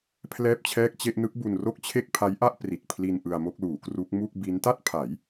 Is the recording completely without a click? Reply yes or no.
yes